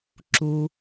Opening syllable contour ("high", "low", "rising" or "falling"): low